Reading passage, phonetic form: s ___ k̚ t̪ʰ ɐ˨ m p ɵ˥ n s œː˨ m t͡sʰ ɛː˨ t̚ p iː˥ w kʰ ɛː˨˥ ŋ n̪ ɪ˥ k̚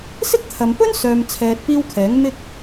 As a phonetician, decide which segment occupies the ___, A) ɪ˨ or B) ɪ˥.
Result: B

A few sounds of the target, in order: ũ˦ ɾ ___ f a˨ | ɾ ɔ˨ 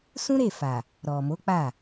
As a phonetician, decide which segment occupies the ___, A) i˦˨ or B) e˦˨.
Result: B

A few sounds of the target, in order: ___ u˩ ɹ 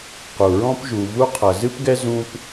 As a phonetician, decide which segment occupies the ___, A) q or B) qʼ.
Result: A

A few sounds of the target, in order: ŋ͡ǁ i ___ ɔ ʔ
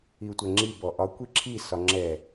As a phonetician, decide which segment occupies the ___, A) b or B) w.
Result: A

